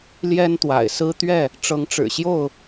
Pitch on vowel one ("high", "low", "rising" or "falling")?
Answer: high